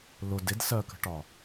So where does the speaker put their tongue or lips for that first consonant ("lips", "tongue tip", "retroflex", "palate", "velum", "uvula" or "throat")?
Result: tongue tip